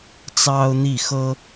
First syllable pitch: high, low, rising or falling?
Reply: high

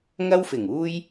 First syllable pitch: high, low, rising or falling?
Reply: high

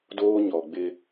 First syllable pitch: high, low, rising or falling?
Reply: high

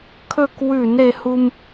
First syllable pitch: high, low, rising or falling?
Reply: falling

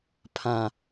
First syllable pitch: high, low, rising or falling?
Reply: low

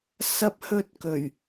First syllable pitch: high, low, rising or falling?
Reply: high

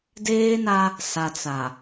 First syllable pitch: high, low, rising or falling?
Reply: high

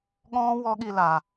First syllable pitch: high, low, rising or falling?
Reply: high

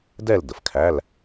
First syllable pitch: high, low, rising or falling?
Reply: falling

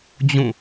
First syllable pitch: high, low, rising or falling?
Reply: falling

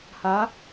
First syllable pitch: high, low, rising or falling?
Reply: rising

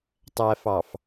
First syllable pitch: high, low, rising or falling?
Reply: low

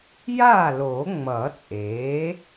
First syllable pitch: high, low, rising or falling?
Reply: falling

